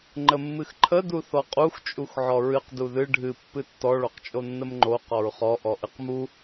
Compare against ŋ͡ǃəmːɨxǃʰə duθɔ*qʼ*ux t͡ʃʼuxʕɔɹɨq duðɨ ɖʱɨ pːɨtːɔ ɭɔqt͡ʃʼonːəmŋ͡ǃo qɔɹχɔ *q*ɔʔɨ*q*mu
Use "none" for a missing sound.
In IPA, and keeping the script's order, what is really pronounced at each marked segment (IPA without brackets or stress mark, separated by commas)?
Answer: qʼ, ʔ, q